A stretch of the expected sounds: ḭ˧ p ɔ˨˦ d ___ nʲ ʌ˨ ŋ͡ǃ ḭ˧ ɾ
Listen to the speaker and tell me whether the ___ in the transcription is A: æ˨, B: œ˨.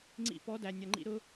A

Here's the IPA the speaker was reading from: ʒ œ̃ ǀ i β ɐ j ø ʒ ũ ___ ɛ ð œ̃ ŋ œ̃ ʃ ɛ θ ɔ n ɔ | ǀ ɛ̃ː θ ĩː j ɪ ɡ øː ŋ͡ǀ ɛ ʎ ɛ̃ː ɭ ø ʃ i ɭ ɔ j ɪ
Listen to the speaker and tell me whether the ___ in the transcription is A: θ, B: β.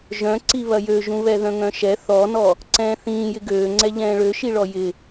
B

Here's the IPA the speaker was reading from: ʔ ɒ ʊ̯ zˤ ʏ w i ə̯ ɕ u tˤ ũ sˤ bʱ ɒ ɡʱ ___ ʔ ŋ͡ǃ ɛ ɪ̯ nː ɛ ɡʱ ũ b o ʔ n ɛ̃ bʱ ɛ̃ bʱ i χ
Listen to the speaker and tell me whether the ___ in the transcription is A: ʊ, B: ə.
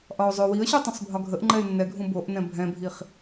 B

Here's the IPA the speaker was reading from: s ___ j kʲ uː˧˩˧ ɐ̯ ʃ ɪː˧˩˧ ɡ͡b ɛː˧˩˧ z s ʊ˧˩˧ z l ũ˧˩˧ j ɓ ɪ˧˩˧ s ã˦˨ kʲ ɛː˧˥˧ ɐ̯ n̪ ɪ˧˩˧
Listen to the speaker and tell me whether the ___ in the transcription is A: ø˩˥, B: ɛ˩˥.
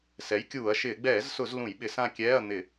B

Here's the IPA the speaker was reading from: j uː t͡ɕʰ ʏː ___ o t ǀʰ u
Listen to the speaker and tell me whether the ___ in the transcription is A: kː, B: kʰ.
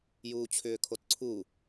B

